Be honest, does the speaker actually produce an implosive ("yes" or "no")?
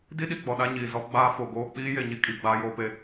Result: yes